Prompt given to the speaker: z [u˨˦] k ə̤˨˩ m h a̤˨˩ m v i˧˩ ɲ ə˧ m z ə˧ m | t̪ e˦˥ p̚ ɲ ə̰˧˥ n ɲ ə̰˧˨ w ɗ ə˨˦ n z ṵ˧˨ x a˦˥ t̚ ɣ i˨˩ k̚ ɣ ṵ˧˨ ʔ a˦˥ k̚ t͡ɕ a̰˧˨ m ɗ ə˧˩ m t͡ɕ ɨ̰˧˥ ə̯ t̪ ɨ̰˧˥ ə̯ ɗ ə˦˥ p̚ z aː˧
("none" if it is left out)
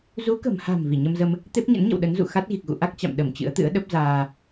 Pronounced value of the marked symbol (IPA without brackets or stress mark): u˨˦